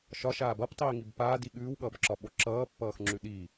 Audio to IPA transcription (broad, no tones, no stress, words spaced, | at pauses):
ʃɒʃaː bʌptˤiːŋib paːdi ɠʉːwɠʌːbǁɒɓo ǁʌːpːʌːxŋ͡ǁʉ ɗiː